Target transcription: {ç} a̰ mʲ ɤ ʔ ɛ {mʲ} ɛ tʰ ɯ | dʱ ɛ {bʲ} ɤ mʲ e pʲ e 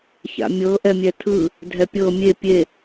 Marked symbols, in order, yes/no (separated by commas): yes, yes, no